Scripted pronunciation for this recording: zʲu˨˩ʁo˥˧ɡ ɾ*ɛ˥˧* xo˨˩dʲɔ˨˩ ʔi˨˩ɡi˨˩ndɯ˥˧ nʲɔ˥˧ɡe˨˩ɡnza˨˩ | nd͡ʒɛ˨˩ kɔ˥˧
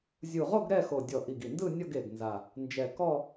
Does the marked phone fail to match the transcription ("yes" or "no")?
no